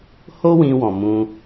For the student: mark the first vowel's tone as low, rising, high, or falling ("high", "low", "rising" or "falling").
high